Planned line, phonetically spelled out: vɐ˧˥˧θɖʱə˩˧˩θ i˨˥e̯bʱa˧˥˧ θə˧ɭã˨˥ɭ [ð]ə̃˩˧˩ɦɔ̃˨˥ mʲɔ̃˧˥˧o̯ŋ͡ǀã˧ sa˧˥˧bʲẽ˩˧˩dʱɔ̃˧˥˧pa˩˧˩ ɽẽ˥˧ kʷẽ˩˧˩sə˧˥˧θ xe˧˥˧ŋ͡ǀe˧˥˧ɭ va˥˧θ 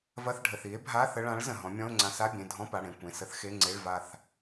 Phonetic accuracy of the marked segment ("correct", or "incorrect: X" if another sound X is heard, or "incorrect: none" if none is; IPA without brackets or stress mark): incorrect: z